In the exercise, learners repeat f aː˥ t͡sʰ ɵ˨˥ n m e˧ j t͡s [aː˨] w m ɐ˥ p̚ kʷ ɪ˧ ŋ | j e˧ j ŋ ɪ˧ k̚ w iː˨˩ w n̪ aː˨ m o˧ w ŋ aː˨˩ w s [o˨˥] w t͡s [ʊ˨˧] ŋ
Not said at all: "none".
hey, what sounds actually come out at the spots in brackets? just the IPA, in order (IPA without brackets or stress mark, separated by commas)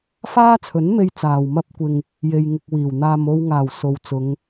aː˨, o˨˧, ʊ˨˧